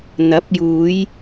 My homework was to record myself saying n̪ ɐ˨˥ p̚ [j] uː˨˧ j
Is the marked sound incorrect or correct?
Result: correct